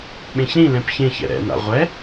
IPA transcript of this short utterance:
ɓẽçɾĩlɛ̃p çẽçɛ̰ ɾɛ̰na̰ ʁʷɛ

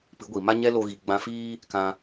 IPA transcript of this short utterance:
pɨ˨˦ɡʷi˨ma˦ ɲɛ˦lo˧ɣi˨ ɡ͡bã˧fiː˦ | kã˧

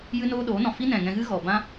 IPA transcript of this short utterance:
jɨ˦noː˦ɗoː˨˦nɔ̃˨ fi˦nɛ̃˨ŋɛ̃˧ɣɨ˦ ɣɔ˨bã˦

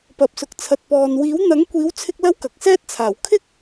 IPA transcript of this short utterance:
pɐ˨p̚sʊ˨k̚t͡sʰɐ˨t̚ pɔː˨n wiː˨˥wn̪ɐ˨˥ŋkʷiː˨˥wt͡sʰɪ˧k̚ lɐ˥wkɐ˨k̚sɛː˥t̚t͡sʰaː˨˩w kʰɪ˥k̚

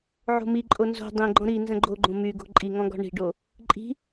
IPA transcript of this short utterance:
ʕo̤miǃʼo nzo̤ dˤĩɡ͡ǃɔ̃ ɾi nzə̃ɡ͡ǃoɡ͡ǃõ myɡo̤ ǃʼiŋɔ̃ ɡɔ̤ɳi̤ɖo | ǃʼi̤

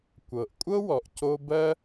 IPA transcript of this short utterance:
kʷɤ˩ʔkʷʼɤ˥wɔ˩ʔ co˥ bɜ˥

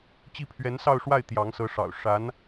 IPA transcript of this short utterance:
t͡ɕi˥˩pʰɥɛ˧˥nsɑ˥˧ʊ̯ʂwa˥˩ɪ̯ t̪jɑ˧˥ŋsɤ˧˥ʂɑ̰˨˩ʊ̯ ʂa˧˥n

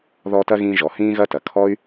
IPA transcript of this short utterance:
ðɔ˦tɐ˥ɣĩ˦ ʒɔ˩hĩː˥ɣɐ˥tɐ˩ kʰɔ˥y̯

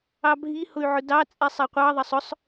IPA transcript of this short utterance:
ɑbʱi hʊy̯ʕʊdɑ t͡sʼɛsˤɛqʷɑ ðˤɐsˤʊsˤ

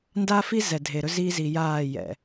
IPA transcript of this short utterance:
nda˦fi˦ zɛ˨dʱe˨ɾɵ˦ zi˦ zi˨jaː˦˨jɛ̰˨

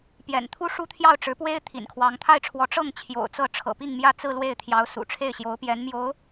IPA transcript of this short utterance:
pjɛ̰˨˩nt̪ʰu˥ʂu˥t̪ʰjɑ˥˩ʊ̯ ʈ͡ʂɻ̩˧˥pwe˥ɪ̯ t̪ʰḭ˨˩nkʰwɑ˧˥ŋ t̪ʰa˥˩ɪ̯ʈ͡ʂʰwɔ˧˥ ʈ͡ʂɤ˥˩ŋ t͡ɕʰjo̰˨˩ʊ̯t͡sɤ˥˩ ʈ͡ʂʰɤ̰˨˩pi˥˧ŋmjä˥˧ t͡sɹ̩˥˧lwe˥˩ɪ̯t̪ʰjɑ˧˥ʊ̯ sṵ˨˩ʈ͡ʂʰe˥˩ɪ̯ɕjo˧˥ʊ̯pjɛ˧˥n mjo˧˥ʊ̯

